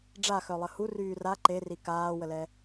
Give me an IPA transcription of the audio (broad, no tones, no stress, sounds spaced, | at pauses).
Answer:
ɖ͡ʐ a x œ lˠ ə h u r yː r a ǃ e r i k aː w ə l ɛ